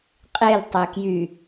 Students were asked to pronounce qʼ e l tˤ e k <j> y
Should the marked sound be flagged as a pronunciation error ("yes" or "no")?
no